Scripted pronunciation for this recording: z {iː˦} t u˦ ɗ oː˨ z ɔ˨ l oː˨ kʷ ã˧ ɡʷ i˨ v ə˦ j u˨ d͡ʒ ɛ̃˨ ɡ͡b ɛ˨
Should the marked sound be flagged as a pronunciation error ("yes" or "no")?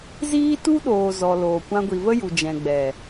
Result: no